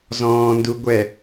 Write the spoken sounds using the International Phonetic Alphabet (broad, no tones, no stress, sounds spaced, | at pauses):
z ɔ̃ː n d u ɡʷ ɛ